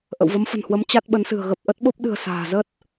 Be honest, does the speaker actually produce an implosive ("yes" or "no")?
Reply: yes